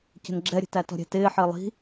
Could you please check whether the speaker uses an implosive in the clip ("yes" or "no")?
no